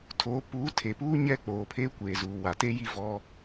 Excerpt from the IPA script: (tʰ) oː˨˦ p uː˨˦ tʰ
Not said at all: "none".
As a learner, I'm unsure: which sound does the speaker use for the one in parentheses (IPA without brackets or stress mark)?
tʰ